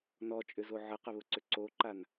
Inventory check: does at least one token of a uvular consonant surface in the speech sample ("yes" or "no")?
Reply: yes